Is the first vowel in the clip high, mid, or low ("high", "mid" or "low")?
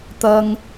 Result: low